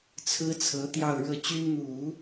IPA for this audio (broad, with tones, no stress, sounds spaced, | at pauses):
t͡sʰ ɹ̩˥ t͡sʰ ɤ˧˥ t̪ j ɑ˥˧ ʊ̯ ɻ ɤ˥˩ t͡ɕ y˥ n n̪ u˨˩˦